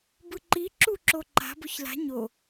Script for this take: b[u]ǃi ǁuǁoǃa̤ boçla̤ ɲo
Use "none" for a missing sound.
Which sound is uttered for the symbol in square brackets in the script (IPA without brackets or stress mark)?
ɯ